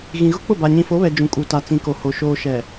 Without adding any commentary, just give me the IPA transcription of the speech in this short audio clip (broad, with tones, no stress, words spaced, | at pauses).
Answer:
ɣĩ˨ɣʊ˦k͡pʊ˦˨ ba˨ɲĩ˨fo˨˦βɛ˨ d͡ʒũ˨kʼu˨ta˨ t͡sĩ˨ko˨ho˨ ʃoː˨ʃɛ˨